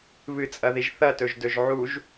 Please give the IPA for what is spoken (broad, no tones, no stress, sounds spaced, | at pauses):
β ɨ t͡sʼ ɐ ð i ʒ θ ɐ t ɵ ʒ d ɵ ʒ ʕ u ʒ